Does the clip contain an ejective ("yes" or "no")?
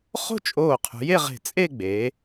yes